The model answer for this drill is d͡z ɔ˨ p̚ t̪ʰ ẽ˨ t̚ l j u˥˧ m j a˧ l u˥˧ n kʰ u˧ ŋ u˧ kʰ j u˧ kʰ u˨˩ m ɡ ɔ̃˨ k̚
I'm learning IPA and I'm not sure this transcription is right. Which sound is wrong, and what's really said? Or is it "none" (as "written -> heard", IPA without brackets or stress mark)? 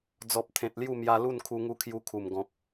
none